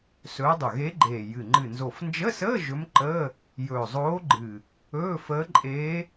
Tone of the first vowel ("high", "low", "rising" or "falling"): rising